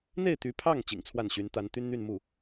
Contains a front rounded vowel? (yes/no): yes